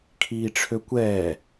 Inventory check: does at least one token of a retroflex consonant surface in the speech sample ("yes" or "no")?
yes